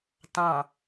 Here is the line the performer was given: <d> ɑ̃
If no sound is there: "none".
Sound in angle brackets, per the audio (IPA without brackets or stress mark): t